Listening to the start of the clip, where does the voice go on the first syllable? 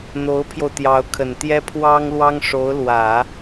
rising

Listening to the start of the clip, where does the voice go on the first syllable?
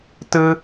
high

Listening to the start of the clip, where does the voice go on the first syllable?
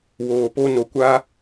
low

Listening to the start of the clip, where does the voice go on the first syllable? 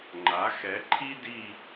rising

